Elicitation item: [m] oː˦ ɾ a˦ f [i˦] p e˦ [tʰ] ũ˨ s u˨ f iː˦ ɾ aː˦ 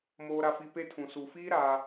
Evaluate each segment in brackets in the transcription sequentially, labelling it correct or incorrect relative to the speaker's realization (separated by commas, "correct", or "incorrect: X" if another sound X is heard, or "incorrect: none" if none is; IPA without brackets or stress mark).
correct, correct, correct